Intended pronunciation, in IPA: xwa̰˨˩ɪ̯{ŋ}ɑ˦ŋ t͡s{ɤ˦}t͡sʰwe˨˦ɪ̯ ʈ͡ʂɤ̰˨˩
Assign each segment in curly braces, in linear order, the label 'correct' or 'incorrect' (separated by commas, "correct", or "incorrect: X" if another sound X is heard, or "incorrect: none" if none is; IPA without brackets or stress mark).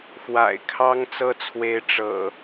incorrect: kʰ, correct